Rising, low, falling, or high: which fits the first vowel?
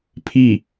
falling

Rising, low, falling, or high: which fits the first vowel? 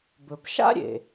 low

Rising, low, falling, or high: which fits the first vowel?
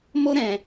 high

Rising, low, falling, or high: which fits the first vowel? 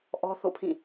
high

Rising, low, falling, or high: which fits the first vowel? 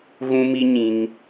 high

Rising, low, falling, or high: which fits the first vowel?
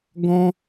high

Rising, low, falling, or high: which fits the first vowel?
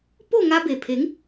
falling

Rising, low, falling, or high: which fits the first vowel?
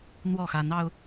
falling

